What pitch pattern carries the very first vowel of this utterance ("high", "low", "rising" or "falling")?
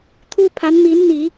high